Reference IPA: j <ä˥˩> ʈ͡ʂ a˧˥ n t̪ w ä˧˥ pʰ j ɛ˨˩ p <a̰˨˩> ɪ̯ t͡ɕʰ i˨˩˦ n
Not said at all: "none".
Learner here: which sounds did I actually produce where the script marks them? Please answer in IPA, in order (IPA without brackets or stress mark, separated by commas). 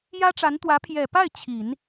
ä˥, a˥˩